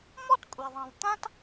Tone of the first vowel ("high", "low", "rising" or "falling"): high